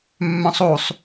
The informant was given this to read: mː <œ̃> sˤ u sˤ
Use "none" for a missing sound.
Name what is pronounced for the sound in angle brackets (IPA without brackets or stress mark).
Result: œ̃